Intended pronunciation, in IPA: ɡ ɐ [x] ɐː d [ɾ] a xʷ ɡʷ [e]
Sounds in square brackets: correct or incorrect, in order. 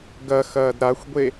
correct, correct, correct

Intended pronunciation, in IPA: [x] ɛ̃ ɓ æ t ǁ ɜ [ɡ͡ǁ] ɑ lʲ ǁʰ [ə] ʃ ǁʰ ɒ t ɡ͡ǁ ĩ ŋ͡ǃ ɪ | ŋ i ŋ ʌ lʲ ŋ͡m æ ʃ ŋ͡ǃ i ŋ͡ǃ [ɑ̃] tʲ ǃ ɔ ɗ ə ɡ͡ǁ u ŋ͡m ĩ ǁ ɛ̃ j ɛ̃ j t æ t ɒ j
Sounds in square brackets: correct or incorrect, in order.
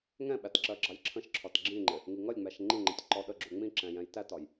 incorrect: ŋ, correct, incorrect: ə̃, incorrect: ə̃

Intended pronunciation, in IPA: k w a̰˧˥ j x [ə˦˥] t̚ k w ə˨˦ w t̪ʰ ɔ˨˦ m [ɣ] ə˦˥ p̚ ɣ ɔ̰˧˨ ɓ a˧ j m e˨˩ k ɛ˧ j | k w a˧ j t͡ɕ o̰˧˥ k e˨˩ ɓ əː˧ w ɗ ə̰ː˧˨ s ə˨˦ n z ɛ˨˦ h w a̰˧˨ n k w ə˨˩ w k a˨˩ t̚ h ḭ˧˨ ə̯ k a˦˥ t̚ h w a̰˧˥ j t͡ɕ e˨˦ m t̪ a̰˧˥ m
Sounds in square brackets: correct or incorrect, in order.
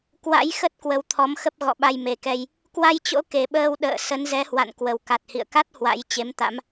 correct, incorrect: x

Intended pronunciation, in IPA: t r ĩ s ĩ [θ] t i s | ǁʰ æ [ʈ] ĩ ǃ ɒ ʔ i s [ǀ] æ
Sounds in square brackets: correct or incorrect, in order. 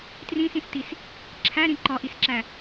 incorrect: s, incorrect: ɾ, incorrect: ǁ

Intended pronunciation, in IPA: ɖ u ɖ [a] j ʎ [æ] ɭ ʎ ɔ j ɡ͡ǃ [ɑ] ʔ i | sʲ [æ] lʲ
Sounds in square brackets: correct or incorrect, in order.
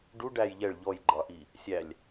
incorrect: æ, incorrect: ɛ, correct, correct

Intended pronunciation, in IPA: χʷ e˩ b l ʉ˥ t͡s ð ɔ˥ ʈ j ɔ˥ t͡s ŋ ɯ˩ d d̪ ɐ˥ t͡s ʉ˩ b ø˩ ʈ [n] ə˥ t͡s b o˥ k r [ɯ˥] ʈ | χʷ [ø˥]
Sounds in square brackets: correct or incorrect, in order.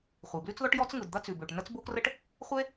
correct, incorrect: ə˥, incorrect: e˥

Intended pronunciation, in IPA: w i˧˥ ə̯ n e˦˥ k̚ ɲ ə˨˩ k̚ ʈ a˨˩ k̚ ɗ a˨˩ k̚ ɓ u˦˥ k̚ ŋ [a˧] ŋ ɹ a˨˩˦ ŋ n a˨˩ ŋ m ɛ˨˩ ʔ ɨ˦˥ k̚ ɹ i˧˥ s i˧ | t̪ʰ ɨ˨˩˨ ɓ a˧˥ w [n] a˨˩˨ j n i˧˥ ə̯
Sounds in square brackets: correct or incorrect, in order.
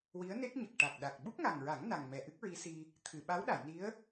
incorrect: a˨˩, incorrect: ɗ

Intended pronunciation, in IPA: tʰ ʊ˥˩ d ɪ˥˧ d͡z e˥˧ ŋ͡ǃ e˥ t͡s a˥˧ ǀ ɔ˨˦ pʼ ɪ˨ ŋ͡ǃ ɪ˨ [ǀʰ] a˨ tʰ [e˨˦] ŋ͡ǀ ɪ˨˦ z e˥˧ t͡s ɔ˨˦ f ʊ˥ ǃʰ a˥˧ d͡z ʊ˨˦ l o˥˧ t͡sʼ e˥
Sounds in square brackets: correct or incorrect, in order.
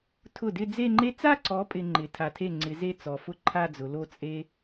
incorrect: tʰ, incorrect: e˥˩

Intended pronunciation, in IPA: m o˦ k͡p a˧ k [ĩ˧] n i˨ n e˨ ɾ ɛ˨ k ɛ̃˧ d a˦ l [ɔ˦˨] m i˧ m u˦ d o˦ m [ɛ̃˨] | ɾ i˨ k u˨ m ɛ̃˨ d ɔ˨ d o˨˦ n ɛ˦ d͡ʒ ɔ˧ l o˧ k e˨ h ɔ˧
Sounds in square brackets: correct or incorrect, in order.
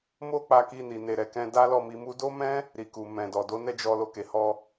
incorrect: i˧, correct, incorrect: ɛ̃˦

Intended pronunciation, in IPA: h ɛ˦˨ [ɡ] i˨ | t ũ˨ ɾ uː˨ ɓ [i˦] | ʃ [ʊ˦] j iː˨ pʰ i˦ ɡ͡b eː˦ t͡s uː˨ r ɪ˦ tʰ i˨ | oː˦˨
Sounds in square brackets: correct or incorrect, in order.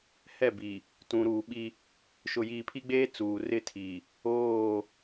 incorrect: b, correct, incorrect: ʊ˨

